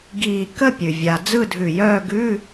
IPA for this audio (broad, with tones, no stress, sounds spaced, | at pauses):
ɡ iː˧˩ k ə˥˧ pʲ ʉ˩ vʲ a˩ d͡z ɯ˥˧ dʱ ʉ˧˩ j œː˥˧ ɡ ʉ˧˥˧